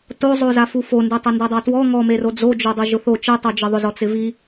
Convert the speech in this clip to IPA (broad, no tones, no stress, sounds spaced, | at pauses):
t o zˤ o z a f u f o n d e tˤ ʊ n d e dˤ a t w ɔ ŋ ɔ m e r o d͡z o d͡ʒ o dˤ e ʒ ʊ θ o t͡ʃ e tˤ o d͡ʒ ɪ ðˤ ʊ z ɔ t͡s ɪ v i